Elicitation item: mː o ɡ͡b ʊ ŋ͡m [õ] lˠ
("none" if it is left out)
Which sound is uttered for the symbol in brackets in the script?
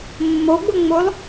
o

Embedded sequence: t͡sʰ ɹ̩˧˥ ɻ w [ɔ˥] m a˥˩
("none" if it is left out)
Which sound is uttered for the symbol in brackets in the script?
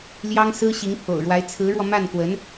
ɔ˧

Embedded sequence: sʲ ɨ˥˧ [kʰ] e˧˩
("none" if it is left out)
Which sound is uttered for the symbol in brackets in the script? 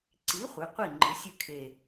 kʰ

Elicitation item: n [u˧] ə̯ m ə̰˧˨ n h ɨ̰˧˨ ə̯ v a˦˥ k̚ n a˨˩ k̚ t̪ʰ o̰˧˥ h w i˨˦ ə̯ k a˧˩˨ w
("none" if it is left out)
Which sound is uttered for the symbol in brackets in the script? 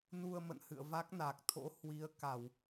u˧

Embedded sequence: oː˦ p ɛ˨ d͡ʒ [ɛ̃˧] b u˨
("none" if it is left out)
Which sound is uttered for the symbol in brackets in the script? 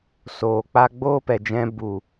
ɛ̃˧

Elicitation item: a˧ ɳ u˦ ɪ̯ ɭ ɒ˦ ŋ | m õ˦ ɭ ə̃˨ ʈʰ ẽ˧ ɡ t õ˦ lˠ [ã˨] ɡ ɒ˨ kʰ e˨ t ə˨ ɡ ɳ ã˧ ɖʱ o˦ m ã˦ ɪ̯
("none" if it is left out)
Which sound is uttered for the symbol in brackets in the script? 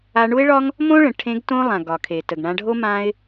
ã˨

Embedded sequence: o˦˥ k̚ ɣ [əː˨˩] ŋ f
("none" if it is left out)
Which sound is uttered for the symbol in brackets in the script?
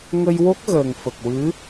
əː˨˩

